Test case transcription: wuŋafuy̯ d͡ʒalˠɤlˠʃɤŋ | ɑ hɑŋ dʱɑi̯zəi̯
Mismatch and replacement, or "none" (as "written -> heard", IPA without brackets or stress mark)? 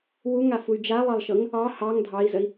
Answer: none